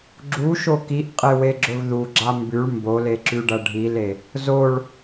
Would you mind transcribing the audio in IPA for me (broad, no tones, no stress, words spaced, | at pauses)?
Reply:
ɡ͡ǁuʃo kiʔqʼeweɡ͡ǁɵv ðuɡ͡ǁa mbʉɭ mboleǁʉɖɐ ɖʱile | zoɭ